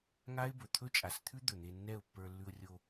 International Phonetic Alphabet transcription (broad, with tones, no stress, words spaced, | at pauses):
ŋa˦ɪ̯bɵ˨ t̪ʰɵ˦t͡ʃʼa˨st̪ʰʉ˦ d̪ɵ˨n̪e˧nːɛ˦˨ʊ̯pːə˞˧ lːʉ˧ʊ̯rʲo˧